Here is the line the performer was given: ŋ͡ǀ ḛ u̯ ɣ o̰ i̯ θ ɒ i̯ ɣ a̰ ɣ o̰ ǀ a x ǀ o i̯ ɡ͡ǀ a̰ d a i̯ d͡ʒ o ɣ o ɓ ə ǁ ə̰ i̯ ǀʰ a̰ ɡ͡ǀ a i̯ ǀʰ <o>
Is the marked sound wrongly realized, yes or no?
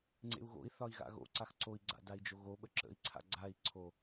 no